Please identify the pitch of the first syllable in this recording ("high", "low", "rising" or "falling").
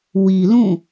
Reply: low